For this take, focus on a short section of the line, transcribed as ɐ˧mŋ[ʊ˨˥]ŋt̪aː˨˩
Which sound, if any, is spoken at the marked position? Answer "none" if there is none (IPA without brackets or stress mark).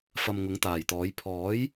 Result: ʊ˨˥